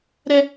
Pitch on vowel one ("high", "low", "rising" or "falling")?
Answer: high